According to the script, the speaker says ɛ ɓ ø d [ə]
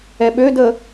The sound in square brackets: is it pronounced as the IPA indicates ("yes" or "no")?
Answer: yes